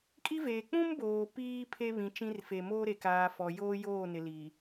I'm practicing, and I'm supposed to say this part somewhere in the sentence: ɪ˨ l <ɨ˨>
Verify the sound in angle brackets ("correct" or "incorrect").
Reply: incorrect